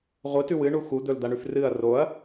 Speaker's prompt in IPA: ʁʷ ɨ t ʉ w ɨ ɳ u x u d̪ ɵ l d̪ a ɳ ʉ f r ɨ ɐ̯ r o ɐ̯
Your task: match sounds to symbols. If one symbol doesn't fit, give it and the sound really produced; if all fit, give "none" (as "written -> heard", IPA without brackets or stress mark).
none